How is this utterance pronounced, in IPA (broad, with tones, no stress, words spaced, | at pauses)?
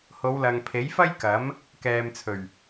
ho˨˧wlɐ˨ŋpʰe˨˥jfɐ˥j kɐ˨˥m | kɛː˨mt͡sʰɵ˨˩ɥ